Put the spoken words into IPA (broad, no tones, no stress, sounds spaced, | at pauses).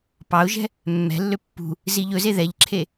p ɑ ʊ̯ ʒ ɛ̤ | mː ɛ̤ lː ø pː ṳ | z i ʎ ɵ z e ð ɛ ʎ ǁʰ e